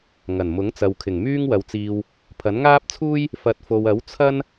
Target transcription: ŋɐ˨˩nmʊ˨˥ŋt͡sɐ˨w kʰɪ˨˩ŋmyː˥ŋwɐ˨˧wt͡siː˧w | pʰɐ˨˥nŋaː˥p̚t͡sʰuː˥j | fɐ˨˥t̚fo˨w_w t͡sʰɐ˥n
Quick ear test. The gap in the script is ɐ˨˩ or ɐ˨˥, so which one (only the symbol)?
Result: ɐ˨˥